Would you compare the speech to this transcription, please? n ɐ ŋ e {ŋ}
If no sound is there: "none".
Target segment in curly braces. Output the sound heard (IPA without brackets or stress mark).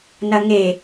none